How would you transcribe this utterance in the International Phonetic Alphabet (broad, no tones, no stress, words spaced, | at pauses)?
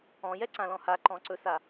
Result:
ɔ̃jɛǀãlɔ̃ haǃɔ̃ǀɵsa